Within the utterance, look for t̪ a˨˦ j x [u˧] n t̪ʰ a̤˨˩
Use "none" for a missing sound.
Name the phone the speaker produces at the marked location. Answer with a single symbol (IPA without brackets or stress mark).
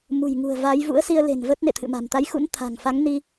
ṵ˧˥